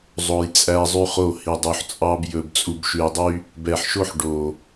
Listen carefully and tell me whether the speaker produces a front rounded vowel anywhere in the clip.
yes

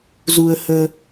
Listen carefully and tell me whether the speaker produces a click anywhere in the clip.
no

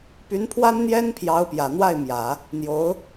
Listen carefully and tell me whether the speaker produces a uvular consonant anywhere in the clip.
no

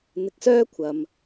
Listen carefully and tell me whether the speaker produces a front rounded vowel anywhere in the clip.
yes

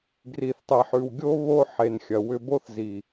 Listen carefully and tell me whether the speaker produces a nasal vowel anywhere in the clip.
no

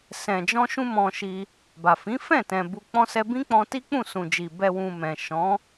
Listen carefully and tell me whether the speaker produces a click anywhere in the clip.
no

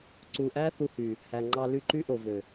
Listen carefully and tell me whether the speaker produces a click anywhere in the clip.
yes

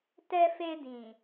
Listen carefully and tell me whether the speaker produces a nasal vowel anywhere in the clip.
yes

